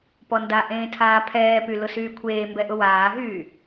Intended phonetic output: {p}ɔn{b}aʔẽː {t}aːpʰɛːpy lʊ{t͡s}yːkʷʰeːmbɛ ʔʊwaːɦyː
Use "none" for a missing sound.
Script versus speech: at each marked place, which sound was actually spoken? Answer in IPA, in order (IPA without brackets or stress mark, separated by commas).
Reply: p, d, tʰ, s